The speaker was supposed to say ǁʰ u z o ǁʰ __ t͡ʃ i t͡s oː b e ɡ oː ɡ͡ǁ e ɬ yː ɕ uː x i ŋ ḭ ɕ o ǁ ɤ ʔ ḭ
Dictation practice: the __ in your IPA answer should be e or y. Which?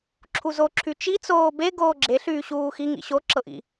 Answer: y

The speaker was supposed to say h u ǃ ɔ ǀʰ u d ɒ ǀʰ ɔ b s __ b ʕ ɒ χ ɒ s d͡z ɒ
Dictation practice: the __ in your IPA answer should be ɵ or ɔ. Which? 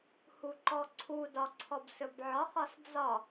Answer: ɵ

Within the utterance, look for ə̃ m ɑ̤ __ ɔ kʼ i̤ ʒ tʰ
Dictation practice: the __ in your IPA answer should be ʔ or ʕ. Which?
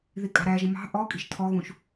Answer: ʔ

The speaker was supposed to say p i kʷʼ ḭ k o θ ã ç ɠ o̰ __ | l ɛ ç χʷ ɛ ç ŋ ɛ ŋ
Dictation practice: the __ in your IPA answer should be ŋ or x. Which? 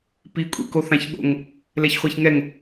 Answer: ŋ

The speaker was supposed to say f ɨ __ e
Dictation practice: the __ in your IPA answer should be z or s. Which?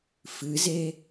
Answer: z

